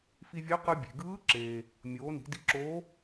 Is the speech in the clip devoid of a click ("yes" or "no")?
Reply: no